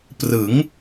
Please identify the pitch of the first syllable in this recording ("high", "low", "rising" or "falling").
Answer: rising